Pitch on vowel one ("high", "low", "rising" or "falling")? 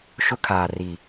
high